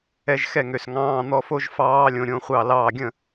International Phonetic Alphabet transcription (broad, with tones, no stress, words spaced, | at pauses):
ɛ˦˥ʒxɛ˥˨ŋø˧s ŋɑ̃ː˧˥˧n̪ɔ˦˥fo˦˥ʒ fɑː˦˥lʲõ˧ ɾʲõ˦˥χʷɑ˥˨lɑː˥˨ ɡʲə̃˥˨